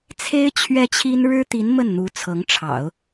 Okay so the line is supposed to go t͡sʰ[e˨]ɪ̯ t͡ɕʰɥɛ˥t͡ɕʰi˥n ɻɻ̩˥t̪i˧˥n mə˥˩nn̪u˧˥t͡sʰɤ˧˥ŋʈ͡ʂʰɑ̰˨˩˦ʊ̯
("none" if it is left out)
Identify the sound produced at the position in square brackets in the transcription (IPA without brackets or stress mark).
e˥